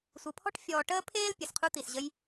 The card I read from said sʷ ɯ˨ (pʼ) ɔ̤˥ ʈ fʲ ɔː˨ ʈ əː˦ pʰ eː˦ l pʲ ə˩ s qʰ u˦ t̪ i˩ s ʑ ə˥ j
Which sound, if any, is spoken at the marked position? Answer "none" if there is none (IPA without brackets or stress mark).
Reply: pʰ